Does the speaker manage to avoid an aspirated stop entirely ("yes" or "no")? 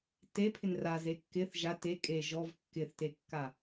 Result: no